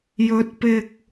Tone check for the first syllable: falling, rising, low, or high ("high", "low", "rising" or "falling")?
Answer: rising